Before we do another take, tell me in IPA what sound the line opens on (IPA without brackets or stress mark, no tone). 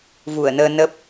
v